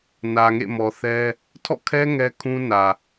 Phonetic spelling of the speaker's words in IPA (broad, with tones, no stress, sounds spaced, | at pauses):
n ä˨ ŋ ḛ˦˨ m ɔ˨ θ ɛ˦ | tʰ ɔ̰˦˨ kʰ ɛ˦ ŋ ɛ˦ kʰ ũ˦ n ä˨